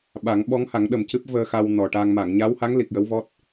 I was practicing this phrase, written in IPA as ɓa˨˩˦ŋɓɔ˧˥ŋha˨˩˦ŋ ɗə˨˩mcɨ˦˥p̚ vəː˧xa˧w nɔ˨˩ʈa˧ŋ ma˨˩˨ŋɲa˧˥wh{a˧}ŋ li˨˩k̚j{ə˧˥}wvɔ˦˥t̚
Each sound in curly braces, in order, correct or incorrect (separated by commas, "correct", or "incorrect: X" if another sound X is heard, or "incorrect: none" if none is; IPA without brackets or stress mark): incorrect: a˧˥, correct